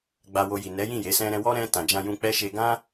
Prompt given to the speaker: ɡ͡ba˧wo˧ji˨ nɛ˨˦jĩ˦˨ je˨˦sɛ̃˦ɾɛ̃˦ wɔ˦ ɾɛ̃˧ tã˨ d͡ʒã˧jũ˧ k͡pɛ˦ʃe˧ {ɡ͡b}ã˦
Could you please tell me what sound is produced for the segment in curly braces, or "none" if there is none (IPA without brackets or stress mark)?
ɡ